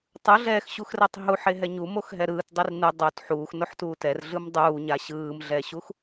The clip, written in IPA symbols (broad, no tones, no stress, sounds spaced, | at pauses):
tˤ ɯ ɮ ɛː x ɕ u x r ɛ tˤ ɦ u ħ e ɦ ɛ ɲ u m o x ɦ ɛ ɾ ɯː t dˤ i r n ɯ dˤ o t ħ uː x n o ħ t uː t ɛ r ɮ ɯ m dˤ uː ɲ a ɕ ɯː m ɮ ɛ ɕ u x